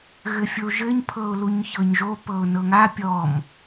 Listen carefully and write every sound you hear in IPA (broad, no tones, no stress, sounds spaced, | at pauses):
ɣ ɘ fʲ o ʒ ɘ ɲ pʰ ɤ ʊ̯ l u ɲ ç ɤ ɲ ʒ o p ɤ ʊ̯ n ɤ ŋ a pʲ ɔ m